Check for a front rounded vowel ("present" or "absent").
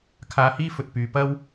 present